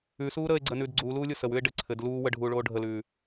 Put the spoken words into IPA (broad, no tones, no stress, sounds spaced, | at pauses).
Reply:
ʉ s uː ɾ əː e̯ ɡ͡ǀ əː n ʉː d ɡ͡ǀ uː l uː lʲ o s ə w ʉ e̯ ɖ ɘ ǀʰ ɘ d l uː w ə ɖʱ uː ɭ oː ɖʱ ə l ʉː